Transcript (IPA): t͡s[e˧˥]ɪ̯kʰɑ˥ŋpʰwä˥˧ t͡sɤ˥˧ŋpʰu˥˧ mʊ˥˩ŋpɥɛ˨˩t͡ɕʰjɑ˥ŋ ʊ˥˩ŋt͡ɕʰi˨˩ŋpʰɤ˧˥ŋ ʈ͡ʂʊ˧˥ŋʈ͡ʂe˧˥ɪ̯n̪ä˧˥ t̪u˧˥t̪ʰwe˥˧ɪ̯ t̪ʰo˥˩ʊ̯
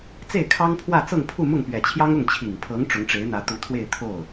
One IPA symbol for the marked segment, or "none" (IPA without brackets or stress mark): e˥˩